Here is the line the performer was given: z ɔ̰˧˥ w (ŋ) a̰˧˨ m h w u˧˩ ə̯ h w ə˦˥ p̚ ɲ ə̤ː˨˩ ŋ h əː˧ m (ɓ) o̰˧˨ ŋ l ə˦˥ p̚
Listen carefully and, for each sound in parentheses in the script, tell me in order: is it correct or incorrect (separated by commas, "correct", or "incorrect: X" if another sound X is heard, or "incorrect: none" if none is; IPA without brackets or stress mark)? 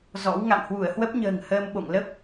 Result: correct, correct